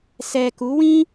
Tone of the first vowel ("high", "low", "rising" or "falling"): low